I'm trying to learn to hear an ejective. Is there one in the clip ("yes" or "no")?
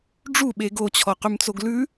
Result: no